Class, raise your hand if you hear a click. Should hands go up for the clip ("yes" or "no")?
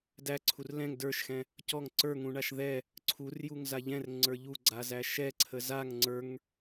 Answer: yes